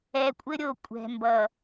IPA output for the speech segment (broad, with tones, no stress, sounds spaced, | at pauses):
ɛ˨ kʷʼ ɘ˦ ɾʲ o˨ kʷʼ ɛ̤˨ m b ʌ˨